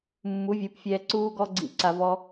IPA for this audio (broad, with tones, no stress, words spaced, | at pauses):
mːu˨˦vʲu˨˦pfʲɛː˧ ǀuː˦ ɡɔ˦ɡ͡ǀḭ˦˨ ǀa˧vɔ˦